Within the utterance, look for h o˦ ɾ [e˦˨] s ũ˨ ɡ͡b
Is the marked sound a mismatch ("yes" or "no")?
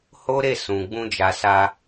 no